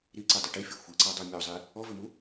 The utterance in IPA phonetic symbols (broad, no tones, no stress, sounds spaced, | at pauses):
ɾ i ǀ ɨ dˤ ʏ ʈ i fʲ ɤ xʷ i ǀ a dˤ u mʲ ɔ zˤ i | ɔ v ʏ m u